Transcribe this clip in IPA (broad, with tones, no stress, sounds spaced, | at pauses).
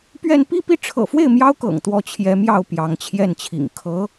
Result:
p ɥ ɛ˥˧ n p i˥˧ p i˥˩ ʈ͡ʂʰ ɤ̰˨˩ f w e˥˩ ɪ̯ m j ɑ˥ ʊ̯ k ɤ̰˨˩ ŋ t̪ w ɔ˧˥ t͡ɕʰ j ɛ˧˥ m j ɑ˥˩ ʊ̯ p j ɑ˧˥ ŋ t͡ɕʰ j ɛ˥˩ n t͡ɕʰ ḭ˨˩ ŋ kʰ ɤ˧˥